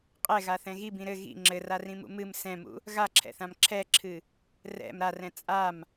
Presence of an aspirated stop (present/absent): present